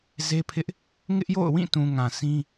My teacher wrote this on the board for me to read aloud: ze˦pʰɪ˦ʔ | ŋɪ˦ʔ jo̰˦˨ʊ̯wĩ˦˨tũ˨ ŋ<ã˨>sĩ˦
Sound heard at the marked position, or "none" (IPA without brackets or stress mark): ã˨